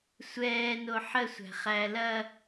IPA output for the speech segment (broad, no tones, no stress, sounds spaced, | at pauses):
sʷ ɛː n o ħ ə sʷ æ̤ χ æ l ɐ